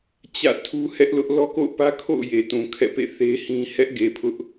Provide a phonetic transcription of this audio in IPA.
t͡ɕ ä̰˦˨ tʰ u˦ h ɛ˦ ʔ l ʊ˦ ʔ l ɔ˦ k o̰˦˨ ʊ̯ p ä˦ kʰ o̰˦˨ ʊ̯ j e˨ t ũ˨ kʰ ɛ̰˦˨ p ḛ˦˨ θ e˦ h ĩ˦ h ɛ˦ ʔ ɡ e˨ pʰ ʊ˦ ʔ

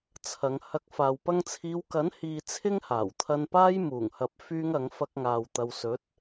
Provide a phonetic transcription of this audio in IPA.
t͡sʰ ɐ˨˧ ŋ h ɐ˧ k̚ f aː˨ w p ɐ˧ ŋ t͡sʰ iː˨˧ w k ɐ˨˥ n h iː˨ t͡sʰ ɪ˥ ŋ h aː˨˩ w t̪ʰ ɐ˧ n p aː˥ j m uː˨˩ ŋ h ɐ˨ p̚ f yː˥ ŋ ɐ˨˥ ŋ f ɐ˥ k̚ ŋ aː˨ w t̪ ɐ˨ w s ɵ˨˥ t̚

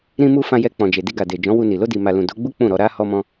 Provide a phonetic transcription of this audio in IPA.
ɾ ĩ˧ m u˧ f ã˧ j ɛ˧ k͡p ɔ̃˨ d͡ʒ e˨ d i˧ ɡ a˨ d e˨ d͡ʒ ɔ̃˨˦ w u˧ n i˨ l o˧ d i˨ m a˨ l ũ˨ d o˨˦ ɡ͡b u˦ k͡p ũ˦˨ ɾ ɔ˧ ɾ a˧ h ɔ˧ m ɔ̃˧

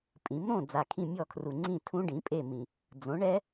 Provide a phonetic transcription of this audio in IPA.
pʼ ĩ˩˥ m ɾ õ˥˨ d͡z a˨˩ kʰ ĩ˥˨ mʲ ɔ˥˨ kʰ r u˨˩ ŋ͡ǀ ĩ˥˨ tʰ ũ˦˥ ɖ ĩ˩˥ pʼ e˥˨ m ĩ˨˩ | d͡z õ˩˥ ɳ ɛ˦˥

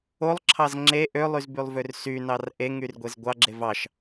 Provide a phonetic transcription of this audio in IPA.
o lˠ ǁʰ ɑ z ŋ͡ǁ e ʔ ø lˠ y z b y lˠ v ø r s y n ɑ r ʔ e ŋ y r ɡʷ e z ɡʷ ɑ ɡ͡ǁ e v ɑ ʃ

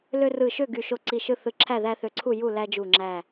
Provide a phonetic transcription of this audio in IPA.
l ø˦ r ɯ˧˩ ʃ ø˥˨ ɡ y˧˩ ʃ o˦ ǀ i˧˩ ʃ ɯ˥˨ θ ɯ˧˩ ǁʰ æ˥˨ ð æ˦ θ ø˧˩ ǀʰ u˥˨ j u˥˨ l æ˦ d͡ʒ u˧˩ ŋ͡ǁ æ˧˩

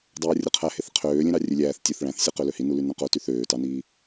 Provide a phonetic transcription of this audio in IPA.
dˤ æː rʲ ɯ qʰ æ h e θ qʰ øː lʲ ẽ ɾ ɑ rʲ ø lʲ æː θ tʲ ø θ ɭ æ̃ θ sʲ u q ø l ø h i n u l y n õ q o t y θ øː t ɑ n iː

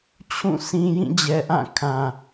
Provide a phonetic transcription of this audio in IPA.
t͡ɕʰ ũ˦˨ s ĩ˨ j ĩ˦˨ d͡ʑ ɛ˨ ʔ ã˦˨ kʰ ã˨

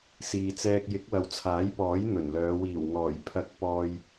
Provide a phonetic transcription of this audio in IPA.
s iː˨ t͡s ɛː˧ k̚ j ɪ˨˥ k̚ w ɐ˨˧ w t͡sʰ aː˨˥ j p ɔː˨˥ j n̪ ɵ˨˩ n l œː˨˧ w iː˨˩ w ŋ ɔː˨˩ j pʰ ɐ˧ k̚ p ɔː˧ j

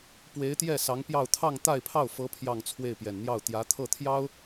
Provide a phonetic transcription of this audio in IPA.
p w e˧˥ ɪ̯ t̪ j ɛ˥˩ s ɑ˧˥ ŋ p j ɑ˥˧ ʊ̯ t̪ʰ ɑ˥˧ ŋ t̪ a˥˧ ɪ̯ pʰ ɑ˥˩ ʊ̯ f ɤ˧˥ pʰ j ɑ˥˧ ŋ t͡sʰ w e˥˩ ɪ̯ p j ɛ˨˩ n n̪ j ɑ˥˩ ʊ̯ t̪ j ä˧˥ t̪ʰ ɤ˥˩ t̪ʰ j ɑ˥ ʊ̯

